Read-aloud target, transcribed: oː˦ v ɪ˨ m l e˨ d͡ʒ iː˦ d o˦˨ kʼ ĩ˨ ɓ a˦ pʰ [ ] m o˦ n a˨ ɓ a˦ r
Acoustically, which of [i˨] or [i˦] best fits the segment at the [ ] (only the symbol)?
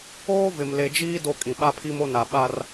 i˦